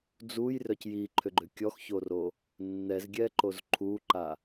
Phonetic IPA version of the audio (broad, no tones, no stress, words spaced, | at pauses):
d͡zujrœc jiǃʰʏɡ͡ǃʏ kʲɔxçoro | nːɛzɡʲɛǃoz ǃʰuǃa